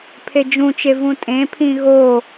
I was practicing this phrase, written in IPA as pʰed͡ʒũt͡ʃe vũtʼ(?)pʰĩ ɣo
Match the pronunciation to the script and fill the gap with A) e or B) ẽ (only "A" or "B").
B